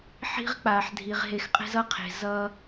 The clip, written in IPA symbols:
ħi̤˦ʁk͡pa˨ħdʱi˨ʁ ɦe˨xqʼɛ̤˧zʌ˧qʰe̤˨ zʌ˧

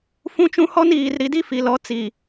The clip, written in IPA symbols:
fũ˦t͡ʃũ˦ hɔ˦niː˨rɾi˨di˦ fi˨lɔ˨˦ t͡si˨

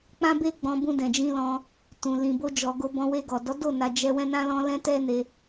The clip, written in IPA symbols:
k͡pã˦be˦ɡ͡bɔ̃˧ bũ˧dɛ̃˨d͡ʒĩ˧lɔ̃˧ | tũ˨ lĩ˨bo˧ d͡ʒɔ˨ ɡo˧bɔ̃˧ we˧ɡɔ˨ dɔ˨˦do˦˨ na˧ d͡ʒɛ˧ wɛ̃˦nã˦lɔ̃˦ lɛ̃˦tɛ˦ne˧

